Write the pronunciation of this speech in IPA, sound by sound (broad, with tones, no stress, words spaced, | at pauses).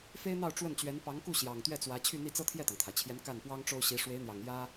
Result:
fe˥ɪ̯n̪ɑ˥˧ʊ̯ ʈ͡ʂwə˥˩nt͡ɕɥɛ˧˥n pɑ˧˥ŋku˥˩ ɕjɑ˨˩ŋ t̪ɥɛ˥˩t͡swä˧˥ t͡ɕʰy˥˧n̪i˥˩t͡sɤ˥ t̪ʰjɛ˥˩t̪ɑ˩ŋt̪ʰa˩ɪ̯t͡ɕʰjɛ˧˥n ka˥˩npwɑ˥ŋʈ͡ʂo˥ʊ̯ɕi˧˥ ʂwe˧˥ɪ̯n̪jɑ˨˩ŋ jä˥